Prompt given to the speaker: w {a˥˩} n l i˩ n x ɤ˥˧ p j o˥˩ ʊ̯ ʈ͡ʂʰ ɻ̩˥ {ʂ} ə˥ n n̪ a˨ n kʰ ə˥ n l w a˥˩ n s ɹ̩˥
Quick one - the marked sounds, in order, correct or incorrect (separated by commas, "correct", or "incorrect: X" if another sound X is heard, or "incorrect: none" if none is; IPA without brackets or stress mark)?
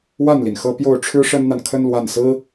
correct, correct